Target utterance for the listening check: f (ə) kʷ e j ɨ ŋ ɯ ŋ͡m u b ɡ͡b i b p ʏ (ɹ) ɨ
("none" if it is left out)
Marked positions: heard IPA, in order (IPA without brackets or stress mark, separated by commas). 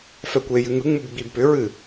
ɛ, ɹ